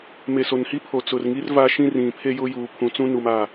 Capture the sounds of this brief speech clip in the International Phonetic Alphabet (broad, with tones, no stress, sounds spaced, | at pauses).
m e˨ s o˨ n h i˦ pʰ o˨ t͡s ʊ˨ r ŋ i˦ r v a˦ ʃ ĩ˦ r ĩ˨ pʰ e˦ j ʊ˦ j uː˨ pʰ ũ˨ t͡s ũ˦ n u˨ m a˦˨